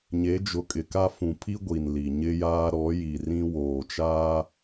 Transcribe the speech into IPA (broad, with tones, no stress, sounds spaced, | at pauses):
ɲ e˨˦ d͡ʒ ʊ˨ kʼ ɪ˨ k a˦ f ũ˨ pʰ i˦ ɡʷ i˨ n l i˨ ɲ ɪ˦ j aː˦ ɾ ɔ˨˦ j i˨ r ĩ˦ w oː˨ t͡ʃ aː˦